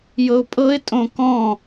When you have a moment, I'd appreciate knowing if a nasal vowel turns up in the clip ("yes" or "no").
yes